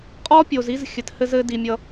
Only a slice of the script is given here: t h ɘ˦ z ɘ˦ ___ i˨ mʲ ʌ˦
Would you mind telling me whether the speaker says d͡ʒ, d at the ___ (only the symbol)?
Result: d